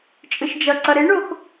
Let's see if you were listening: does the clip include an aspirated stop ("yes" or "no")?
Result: no